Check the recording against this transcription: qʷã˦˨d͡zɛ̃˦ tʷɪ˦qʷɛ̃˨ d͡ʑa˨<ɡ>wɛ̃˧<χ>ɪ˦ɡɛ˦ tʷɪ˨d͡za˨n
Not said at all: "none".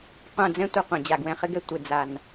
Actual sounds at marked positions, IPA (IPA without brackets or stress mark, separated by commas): ɡ, χ